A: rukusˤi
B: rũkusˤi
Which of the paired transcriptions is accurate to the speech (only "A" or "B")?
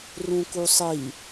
B